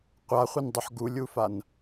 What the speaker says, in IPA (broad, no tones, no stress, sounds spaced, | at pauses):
qʷ a χʷ i n dˤ u ħ ɡ u lʲ u f a n